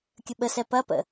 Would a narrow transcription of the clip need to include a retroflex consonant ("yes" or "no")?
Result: no